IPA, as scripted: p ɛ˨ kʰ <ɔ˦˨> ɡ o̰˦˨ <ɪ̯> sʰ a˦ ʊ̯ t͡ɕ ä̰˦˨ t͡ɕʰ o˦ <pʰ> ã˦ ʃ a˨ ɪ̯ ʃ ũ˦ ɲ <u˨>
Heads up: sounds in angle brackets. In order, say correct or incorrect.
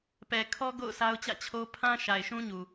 incorrect: ɔ˦, incorrect: ʊ̯, correct, correct

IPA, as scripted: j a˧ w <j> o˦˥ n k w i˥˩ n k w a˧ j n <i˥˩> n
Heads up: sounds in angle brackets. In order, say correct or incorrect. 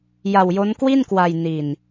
correct, incorrect: i˧

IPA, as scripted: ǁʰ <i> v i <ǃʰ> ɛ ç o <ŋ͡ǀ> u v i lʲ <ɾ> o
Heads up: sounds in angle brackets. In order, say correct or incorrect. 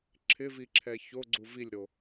incorrect: ɪ, incorrect: ǁʰ, incorrect: ɡ͡ǀ, correct

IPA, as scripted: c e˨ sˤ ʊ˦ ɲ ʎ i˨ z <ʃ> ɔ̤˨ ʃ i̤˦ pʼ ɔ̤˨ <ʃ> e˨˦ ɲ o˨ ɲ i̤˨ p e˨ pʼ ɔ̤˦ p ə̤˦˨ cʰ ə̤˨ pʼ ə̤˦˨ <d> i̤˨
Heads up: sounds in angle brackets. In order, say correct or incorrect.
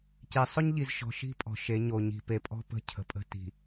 correct, correct, incorrect: t

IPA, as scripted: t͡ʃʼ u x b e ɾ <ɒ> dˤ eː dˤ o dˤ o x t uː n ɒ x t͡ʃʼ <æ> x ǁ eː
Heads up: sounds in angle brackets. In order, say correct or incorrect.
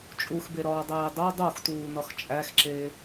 incorrect: ɒː, correct

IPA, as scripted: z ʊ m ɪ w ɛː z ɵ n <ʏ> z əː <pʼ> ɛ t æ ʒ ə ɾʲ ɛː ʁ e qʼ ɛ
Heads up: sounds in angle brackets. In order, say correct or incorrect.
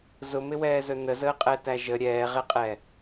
incorrect: ə, incorrect: qʼ

